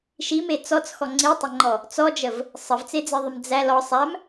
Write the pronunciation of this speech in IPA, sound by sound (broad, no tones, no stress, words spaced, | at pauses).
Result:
ʃime t͡sɔt͡sxɔ ŋ͡ǀitˤəŋ͡ǃɔ | t͡sɔd͡ʒəv | sˤəvt͡sed͡ziðˤəm d͡zæ lɔ sˤæm